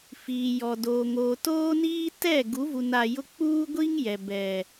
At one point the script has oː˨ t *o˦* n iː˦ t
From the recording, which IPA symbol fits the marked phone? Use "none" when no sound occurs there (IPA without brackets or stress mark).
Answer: oː˦